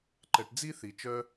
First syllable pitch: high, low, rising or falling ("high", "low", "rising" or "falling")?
low